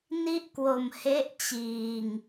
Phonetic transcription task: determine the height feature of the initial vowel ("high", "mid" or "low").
high